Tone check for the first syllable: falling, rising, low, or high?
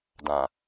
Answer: low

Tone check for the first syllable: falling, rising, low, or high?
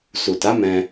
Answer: low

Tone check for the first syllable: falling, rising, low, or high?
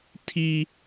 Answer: high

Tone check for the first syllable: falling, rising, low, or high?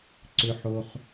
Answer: low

